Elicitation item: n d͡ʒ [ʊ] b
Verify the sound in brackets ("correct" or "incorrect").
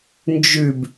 incorrect